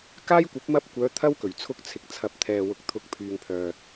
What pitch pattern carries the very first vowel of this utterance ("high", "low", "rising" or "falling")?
high